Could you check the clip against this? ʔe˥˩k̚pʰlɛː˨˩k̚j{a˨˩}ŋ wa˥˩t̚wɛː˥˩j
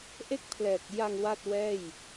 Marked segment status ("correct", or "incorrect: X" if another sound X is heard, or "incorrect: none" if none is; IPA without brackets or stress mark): incorrect: a˧